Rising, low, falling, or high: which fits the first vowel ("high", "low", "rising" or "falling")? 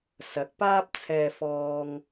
rising